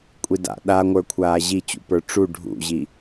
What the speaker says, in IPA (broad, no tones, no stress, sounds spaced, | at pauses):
kʷʼ i d a̰ ɗ a ŋʷ ə˞ kʷʰ aː ʑ i t͡ɕ ṵ p ə˞ ʈ͡ʂ u ɖʱ ṵ ʑ i